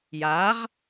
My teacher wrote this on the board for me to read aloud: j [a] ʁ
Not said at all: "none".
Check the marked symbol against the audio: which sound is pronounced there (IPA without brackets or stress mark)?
a